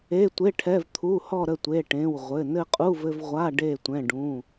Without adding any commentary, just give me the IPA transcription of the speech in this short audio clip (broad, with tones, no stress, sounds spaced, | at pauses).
e˩˧˩ tʷ e˩˧˩ ʈʰ ɛ˩˧˩ v t̪ʰ u˩˧˩ h ɔ˧˩ ɾ ə˧˩ tʷ e˩˧˩ ʈ ẽ˩˧˩ w ʁʷ ɘ˩˧˩ n ɘ˧˩ qʼ u˩˧˩ v ɘ˧˩ v ʁʷ a˩˧˩ ɖ e˧˩ tʷ ɛ̃˩˧˩ ɖ ũ˩˧˩